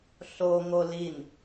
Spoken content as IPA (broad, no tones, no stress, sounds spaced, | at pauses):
ɬ o ŋ o l i n